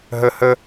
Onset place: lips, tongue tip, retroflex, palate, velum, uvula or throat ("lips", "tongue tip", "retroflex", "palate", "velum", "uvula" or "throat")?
throat